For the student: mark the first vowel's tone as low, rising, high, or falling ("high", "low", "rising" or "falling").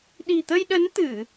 low